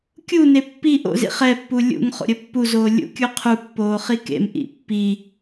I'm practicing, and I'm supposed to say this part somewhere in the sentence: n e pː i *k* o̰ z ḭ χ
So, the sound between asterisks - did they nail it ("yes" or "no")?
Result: no